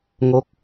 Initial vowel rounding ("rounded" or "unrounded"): rounded